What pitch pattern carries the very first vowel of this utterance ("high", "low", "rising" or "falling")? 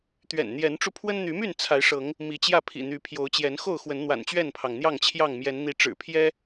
low